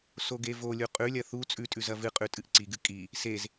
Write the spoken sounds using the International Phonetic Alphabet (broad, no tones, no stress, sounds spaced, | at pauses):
s o ɡ e v o lʲ u qʼ ʉ lʲ ɐ θ u t͡sʼ ʉ tʼ ʉ z ɐ v ɨ qʼ ʉ tʼ ɨ ʔ ǀ i ɡ ɨ kʼ i | s e z